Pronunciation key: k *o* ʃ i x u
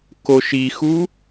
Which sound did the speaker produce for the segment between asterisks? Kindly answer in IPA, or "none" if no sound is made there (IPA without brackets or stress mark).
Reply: o